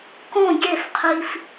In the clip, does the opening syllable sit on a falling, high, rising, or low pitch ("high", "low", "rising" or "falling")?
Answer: falling